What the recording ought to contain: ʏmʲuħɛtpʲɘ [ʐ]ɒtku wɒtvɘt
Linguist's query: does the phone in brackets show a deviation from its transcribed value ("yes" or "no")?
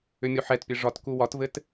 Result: no